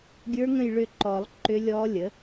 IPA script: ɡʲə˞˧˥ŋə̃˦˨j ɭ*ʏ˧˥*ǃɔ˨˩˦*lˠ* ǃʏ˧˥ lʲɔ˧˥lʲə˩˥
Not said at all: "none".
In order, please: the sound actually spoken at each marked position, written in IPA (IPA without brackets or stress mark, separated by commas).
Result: ʏ˦˨, lˠ